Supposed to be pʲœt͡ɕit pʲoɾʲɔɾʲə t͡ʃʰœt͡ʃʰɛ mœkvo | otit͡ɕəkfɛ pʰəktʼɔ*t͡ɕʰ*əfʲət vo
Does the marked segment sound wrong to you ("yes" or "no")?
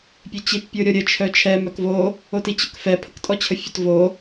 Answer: no